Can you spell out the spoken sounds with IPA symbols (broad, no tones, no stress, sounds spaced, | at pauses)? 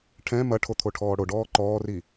ʈʰ ɛ̃ m ɐ ʈʰ o t̪ʰ o ʈʰ ɔː ɽ o ɖ ɔː ǃ ɔː r i